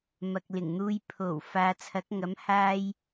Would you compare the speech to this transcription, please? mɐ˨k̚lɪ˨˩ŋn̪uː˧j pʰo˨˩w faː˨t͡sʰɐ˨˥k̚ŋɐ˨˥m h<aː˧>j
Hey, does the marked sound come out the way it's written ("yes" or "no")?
yes